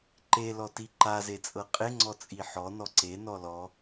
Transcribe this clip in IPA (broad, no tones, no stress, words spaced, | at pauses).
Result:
ǃelɔti ǃazet͡sʼɤ qʼeŋ͡ǀɔ t͡sʼiħɔ nɔǀe nɔlɔ